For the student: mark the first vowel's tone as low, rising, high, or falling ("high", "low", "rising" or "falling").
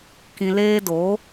low